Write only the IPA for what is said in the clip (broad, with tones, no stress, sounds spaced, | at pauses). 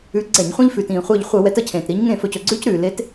ʉ˨˥ ɡ͡ǀ ɛ˧˩˧ ɲ χʷ ĩ˦ ʎ f ʉː˩ t ĩː˩ χʷ əː˧˩ ʎ χʷ əː˧˩˧ w ɛ˨˥ t ə˧˩ cʰ ẽː˩ t ɾ i˨˥ ɲ ŋ ẽ˥˩ f ɵ˧˩ c ɵ˧˩ ɡ͡ǀ ʉː˦ c ɾ ʉː˩ l e˨˥ t